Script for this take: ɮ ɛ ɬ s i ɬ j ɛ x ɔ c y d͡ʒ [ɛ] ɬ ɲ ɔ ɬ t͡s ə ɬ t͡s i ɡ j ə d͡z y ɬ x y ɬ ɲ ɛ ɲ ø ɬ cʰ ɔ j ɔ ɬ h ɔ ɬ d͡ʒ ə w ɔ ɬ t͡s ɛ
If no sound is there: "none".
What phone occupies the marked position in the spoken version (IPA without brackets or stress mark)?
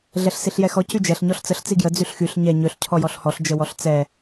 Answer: ɛ